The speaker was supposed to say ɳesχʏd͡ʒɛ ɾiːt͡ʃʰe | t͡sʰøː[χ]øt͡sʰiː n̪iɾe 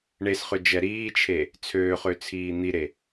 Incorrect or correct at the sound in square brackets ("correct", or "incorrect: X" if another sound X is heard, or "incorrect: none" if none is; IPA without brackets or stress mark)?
correct